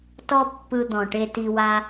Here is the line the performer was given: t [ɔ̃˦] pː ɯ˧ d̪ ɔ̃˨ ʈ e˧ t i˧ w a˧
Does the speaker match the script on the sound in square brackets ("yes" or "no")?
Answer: no